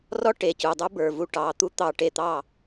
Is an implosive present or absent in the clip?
absent